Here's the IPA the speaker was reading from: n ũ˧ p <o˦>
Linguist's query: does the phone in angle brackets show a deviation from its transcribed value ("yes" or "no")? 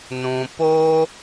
no